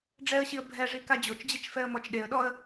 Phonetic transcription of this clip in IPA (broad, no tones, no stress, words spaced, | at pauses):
ɖ͡ʐɛə̯ɕiə̯ bʱɛʐi kad͡ʑot͡ʃd͡ʑet͡ʃ fɛə̯mɔt͡ʃɗeə̯ɗɔə̯